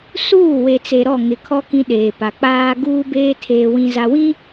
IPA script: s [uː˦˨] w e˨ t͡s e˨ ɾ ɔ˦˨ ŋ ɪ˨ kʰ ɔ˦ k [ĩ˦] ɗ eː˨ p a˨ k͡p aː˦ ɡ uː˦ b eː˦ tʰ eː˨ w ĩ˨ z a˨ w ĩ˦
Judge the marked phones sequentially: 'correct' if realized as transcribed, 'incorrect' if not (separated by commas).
correct, correct